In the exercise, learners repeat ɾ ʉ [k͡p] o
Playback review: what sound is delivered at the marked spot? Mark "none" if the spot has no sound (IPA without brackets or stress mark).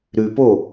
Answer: p